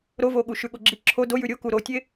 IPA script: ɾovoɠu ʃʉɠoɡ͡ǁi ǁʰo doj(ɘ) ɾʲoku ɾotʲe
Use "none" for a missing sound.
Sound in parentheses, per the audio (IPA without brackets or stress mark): ʉ